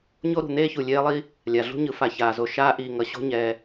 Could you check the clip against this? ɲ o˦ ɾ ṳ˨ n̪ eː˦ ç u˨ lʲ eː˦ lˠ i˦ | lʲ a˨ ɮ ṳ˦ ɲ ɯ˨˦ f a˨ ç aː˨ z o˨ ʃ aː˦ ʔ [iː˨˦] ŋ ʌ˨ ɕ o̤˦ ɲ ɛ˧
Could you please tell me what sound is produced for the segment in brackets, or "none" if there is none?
iː˨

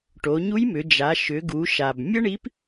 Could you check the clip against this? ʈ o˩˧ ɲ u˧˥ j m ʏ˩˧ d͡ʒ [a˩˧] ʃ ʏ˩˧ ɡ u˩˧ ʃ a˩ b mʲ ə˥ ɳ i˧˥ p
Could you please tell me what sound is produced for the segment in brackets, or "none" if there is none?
a˩˧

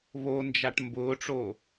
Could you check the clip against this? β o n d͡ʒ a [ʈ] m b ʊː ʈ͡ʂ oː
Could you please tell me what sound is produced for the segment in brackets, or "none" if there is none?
ʈ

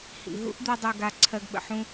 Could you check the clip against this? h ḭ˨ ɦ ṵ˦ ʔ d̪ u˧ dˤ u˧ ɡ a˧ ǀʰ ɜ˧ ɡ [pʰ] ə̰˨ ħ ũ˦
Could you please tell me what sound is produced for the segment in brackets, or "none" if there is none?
ɓ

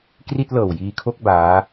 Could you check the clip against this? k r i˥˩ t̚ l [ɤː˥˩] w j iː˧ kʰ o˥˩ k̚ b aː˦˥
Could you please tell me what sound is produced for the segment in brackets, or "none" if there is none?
ɤː˨˩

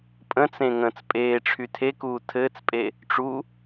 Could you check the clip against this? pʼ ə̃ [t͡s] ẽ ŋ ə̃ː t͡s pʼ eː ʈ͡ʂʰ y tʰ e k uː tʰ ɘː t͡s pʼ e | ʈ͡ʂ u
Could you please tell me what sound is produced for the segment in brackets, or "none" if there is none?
t͡s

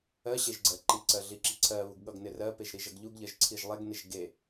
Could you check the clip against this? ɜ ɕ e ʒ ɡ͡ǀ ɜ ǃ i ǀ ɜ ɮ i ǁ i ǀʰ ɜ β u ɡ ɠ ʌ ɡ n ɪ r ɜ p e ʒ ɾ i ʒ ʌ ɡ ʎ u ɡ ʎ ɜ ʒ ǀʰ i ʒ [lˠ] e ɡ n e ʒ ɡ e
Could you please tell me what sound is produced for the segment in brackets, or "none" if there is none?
lˠ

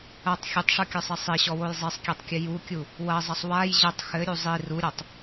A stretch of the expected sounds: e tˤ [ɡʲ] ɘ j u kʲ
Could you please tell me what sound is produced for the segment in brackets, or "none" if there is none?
kʲ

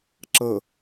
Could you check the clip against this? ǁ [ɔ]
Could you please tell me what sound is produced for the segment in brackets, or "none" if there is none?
ɤ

